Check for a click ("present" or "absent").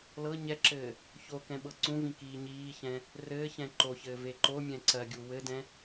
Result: present